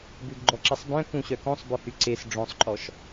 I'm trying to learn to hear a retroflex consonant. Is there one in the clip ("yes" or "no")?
yes